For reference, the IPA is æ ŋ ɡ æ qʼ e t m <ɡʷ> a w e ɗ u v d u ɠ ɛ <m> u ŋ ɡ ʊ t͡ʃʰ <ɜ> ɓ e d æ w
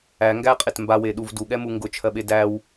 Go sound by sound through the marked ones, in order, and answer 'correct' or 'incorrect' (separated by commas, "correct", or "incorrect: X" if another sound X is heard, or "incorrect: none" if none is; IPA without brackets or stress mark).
incorrect: b, correct, correct